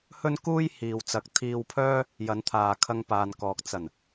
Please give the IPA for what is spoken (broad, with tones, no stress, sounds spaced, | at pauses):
h ɵ˥ n k uː˥ j h iː˨ w t͡s ɐ˨˥ k̚ t̪ʰ iː˧ w pʰ œː˥ | j ɐ˨˧ n t̪ʰ aː˨ kʰ ɐ˧ ŋ p aː˨ n k ɔː˨ k̚ t͡s ɐ˨˩ n